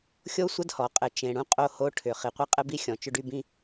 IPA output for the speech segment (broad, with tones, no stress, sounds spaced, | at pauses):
xʲ o˥ sʷ ə˥ d h ɔ˩ qʼ ɘ˩ t͡ʃ ẽ˩ ɽ ũ˥ qʼ o˥ h o˥ ʈʰ ʏ˩ χ i˩ qʷ ɘ˥ qʼ ɘ˥ b i˥ xʲ ɔ̃˩ t͡ʃ ʏ˥ ɖ y˥ b ĩ˥